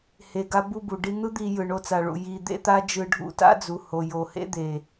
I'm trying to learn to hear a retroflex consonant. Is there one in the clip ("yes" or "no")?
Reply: yes